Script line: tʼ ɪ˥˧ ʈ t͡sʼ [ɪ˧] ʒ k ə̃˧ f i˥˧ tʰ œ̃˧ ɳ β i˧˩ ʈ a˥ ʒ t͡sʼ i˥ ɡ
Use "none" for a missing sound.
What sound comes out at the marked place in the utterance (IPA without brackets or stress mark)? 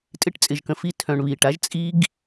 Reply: ɪ˧